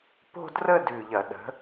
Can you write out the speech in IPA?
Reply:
po̤˥˧drə˥˧ dʉ˧˩ʎɐ˧˩˧ɗə̤˨˥

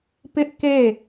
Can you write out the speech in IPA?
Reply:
pɪ˦ʔke˦˨

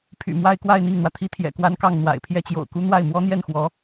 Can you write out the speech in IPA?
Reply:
pʰy̰˨˩mwa˥˧ɪ̯kwa˥˧ɪ̯ n̪i˥˩ŋn̪wä˩t̪ʰi˥t̪ʰjɛ̰˨˩ kwa˥nkɑ˥˩ŋn̪wa̰˨˩ɪ̯ pʰjɛ˥˩t͡ɕjo̰˨˩ʊ̯ku˥ n̪wa˥˩ɪ̯mwɔ˥n̪jɛ˥˩nxwɔ˧˥

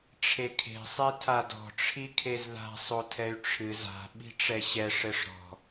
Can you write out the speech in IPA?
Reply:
ʈ͡ʂʰekʰe̤sˤe tʰadɔ̤ ʈ͡ʂʰikʰezða̤ sˤotʰɛy̯ʈ͡ʂʰɨz a̤ɓi̤ʈ͡ʂɛ ɕɛ ʂɘʂɾɔ̤

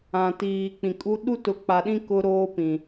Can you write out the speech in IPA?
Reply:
ã˨tiː˨k͡pĩ˨kʼu˦ ɗu˦tʊ˨˦k͡pa˨ɗĩ˦ kʊ˦ ɾoː˦ pĩ˨

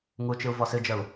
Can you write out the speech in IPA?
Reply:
ŋut͡ʃɨu̯ vɔsɨd͡ʒəu̯

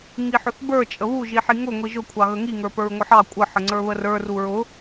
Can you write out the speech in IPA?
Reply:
ŋiħʊθbə˞ t͡ʃʼəβu ʒiħiŋʊ ŋʷiʒʊ kʷʰɑɣəŋi ŋə˞pə˞ɹŋʷəħɑ kʷʼə ħəŋ͡ǀə˞βərə˞ ruɹʊ

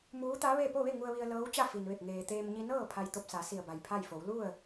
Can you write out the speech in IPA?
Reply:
muː˧˥t̪a˧˥ ʋe˥˨ po˥˨ʋe˥˨ ŋu˧ə̯ʋi˧ə̯ lɤː˧˥wt͡ɕa˥˨ fi˩nʋe˧˩p̚ ŋeː˩t̪eː˧m ɲi˧nɤː˥˨ pʰa˧jt̪o˧p̚sa˩˧ si˧˩ə̯ba˩jpʰa˥˨jfo˩˧w lu˥˨ə̯

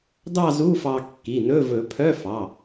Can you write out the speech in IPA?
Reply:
dɑ˥˧zu˧˥˧fɑ˧ kːi˩˧˩nɵ˧˥˧ vɵ˨˩˦pʰœ˧˥˧ fɑ˩˧˩

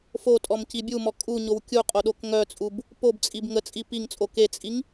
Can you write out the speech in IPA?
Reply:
fotʼɔm cibʲumɔ kʼuɲow kʲuqʼo ɗokŋœt͡sʼub | pobt͡sʼib ŋət͡sʼi piŋt͡sʼo ket͡sʼiŋ

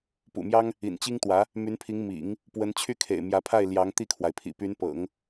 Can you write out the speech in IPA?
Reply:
pṵ˨˩mjɑ˥ŋ | ḭ˨˩nt͡ɕi˥ŋt̪wä˧˥ | my˧˥npʰi˧˥ŋ mḭ˨˩˦ŋ | pwə˧˥n t͡ɕʰy˥˩kʰḛ˨˩ɪ̯mjä˧˥pʰa˥˩ɪ̯ ljɑ˧˥ŋt̪i˥˩kʰwa˩ɪ̯ pʰḭ˨˩py˧˥npɤ̰˨˩˦ŋ

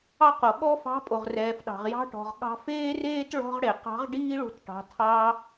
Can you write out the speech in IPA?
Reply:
ɑ˥qo˩ ɠɔ˥fɑ̤˧˥ pʼo˩ʁrɛː˩fɗɑ̤˩ʁ jɑ̤˧ʈɔ̤˩ʁ ɠɑ̤˧feː˥reː˥t ɭɔ̤˧ʁ ɽe˩qɑ̤˧˥ʁ ɖiː˥ɭo̤˧t ʈɑ̤˩˧ tʰɑ˧

